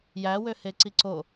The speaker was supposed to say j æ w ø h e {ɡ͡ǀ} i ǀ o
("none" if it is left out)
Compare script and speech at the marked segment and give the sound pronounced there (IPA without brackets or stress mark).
ǀ